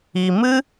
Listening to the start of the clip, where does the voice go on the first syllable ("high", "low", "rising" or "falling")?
low